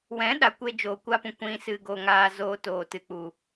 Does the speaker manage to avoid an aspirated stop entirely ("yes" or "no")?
yes